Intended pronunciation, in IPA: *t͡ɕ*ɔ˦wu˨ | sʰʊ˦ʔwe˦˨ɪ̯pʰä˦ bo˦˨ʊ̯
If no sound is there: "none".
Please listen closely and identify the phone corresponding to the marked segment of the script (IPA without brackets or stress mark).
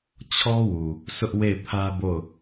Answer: t͡ɕʰ